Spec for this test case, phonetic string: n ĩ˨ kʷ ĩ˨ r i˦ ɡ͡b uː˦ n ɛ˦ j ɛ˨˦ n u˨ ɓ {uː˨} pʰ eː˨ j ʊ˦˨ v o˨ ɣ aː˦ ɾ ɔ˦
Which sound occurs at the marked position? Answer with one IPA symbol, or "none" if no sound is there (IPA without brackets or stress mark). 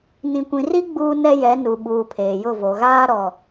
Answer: uː˨